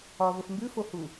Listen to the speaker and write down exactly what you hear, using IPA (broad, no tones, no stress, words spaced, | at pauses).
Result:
ɒ vəfmbʉfohu